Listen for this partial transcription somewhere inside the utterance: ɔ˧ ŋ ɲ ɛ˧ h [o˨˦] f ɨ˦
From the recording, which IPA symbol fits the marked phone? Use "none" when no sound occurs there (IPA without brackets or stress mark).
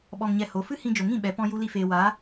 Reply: o˨˦